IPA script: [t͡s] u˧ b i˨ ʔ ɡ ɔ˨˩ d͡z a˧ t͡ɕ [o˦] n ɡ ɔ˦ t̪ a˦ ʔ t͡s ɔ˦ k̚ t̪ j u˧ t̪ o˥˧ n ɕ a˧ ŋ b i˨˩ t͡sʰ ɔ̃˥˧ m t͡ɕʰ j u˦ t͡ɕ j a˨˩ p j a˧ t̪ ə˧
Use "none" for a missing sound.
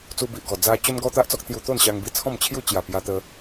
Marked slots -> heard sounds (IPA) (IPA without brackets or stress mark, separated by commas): t͡s, o˦